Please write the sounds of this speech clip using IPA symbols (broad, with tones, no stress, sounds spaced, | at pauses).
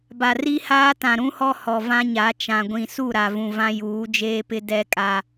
b a˨ r i˦ h aː˦ t ã˨ ɾ ũ˦ h ɔ˦ h ɔ˨ v ã˦ ɲ a˨˦ t͡ʃ ã˨ ɡʷ ĩ˨ s u˦˨ ɾ a˨ v ũ˨ v ã˦ j uː˨˦ d͡ʒ eː˦ p ɪ˦ d ɛ˦ kʼ a˦